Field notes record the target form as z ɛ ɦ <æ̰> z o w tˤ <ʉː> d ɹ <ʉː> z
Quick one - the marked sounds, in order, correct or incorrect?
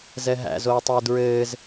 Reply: correct, correct, incorrect: ɘː

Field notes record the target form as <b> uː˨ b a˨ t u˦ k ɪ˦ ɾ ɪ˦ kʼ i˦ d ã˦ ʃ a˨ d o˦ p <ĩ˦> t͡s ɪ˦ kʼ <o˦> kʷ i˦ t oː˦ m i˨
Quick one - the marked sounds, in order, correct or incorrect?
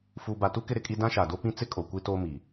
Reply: incorrect: f, correct, incorrect: o˨

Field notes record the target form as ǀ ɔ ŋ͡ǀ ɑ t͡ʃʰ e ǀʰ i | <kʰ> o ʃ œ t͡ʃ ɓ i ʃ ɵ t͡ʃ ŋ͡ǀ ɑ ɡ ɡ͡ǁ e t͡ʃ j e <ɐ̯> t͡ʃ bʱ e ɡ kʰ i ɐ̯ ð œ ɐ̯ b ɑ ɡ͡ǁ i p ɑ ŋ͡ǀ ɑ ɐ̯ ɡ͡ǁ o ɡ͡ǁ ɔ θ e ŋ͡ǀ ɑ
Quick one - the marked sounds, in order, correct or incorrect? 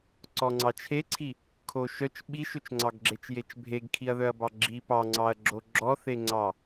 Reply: correct, incorrect: none

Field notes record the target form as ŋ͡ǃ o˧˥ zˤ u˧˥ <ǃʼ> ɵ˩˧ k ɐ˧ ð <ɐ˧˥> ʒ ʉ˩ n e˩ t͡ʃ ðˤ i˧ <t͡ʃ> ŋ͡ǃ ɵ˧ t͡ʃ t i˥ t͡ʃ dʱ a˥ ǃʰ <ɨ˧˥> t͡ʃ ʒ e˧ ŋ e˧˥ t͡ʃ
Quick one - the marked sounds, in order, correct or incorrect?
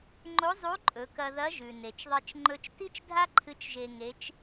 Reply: correct, correct, correct, correct

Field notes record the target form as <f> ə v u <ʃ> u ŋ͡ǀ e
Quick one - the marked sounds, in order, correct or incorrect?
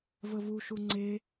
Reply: incorrect: v, correct

